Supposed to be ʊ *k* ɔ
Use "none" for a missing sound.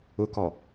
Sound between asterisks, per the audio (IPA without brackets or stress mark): k